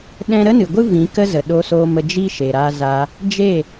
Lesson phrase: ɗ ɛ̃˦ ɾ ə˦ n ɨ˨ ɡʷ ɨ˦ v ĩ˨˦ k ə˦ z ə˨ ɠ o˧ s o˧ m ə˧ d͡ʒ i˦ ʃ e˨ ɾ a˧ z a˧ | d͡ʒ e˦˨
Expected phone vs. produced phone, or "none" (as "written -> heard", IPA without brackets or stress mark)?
ɠ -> ɗ